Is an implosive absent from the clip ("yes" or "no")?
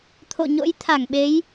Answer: no